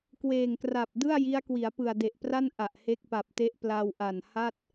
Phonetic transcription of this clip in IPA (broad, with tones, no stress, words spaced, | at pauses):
kweː˨˩ŋkra˨˩p̚ dɯ˥˩a̯ji˦˥a̯ kwi˩˦a̯pɯ˨˩a̯de˨˩ʔpra˥˩n ʔa˨˩ʔhe˦˥k̚pa˨˩p̚te˦˥ʔ pla˧wʔa˨˩nha˥˩t̚